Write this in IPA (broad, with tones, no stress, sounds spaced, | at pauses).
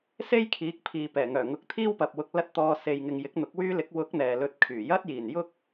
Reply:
s e˥ j kʰ iː˨˥ k̚ pʰ iː˨ p ɛː˨˩ ŋ œː˨˩ ŋ ʊ˨ k̚ t̪ʰ iː˥ w p ɐ˨ p̚ w ʊ˨ k̚ l ɐ˧ t̚ t̪ ɔː˨ s e˨ j ŋ ɪ˨ ŋ j ɪ˨˥ k̚ n̪ ʊ˨˥ k̚ w yː˥ l ɪ˨˥ k̚ w ʊ˨˥ k̚ n̪ ɛː˨ l ɵ˧ t̚ kʰ yː˨˩ j ɐ˥ t̚ j iː˨˩ n j ʊ˥ k̚